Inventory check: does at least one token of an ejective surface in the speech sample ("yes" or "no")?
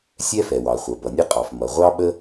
yes